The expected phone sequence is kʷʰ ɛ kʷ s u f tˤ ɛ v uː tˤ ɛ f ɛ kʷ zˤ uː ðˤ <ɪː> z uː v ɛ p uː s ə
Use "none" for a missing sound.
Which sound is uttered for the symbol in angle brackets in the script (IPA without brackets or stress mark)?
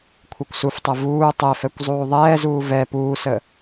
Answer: ɛː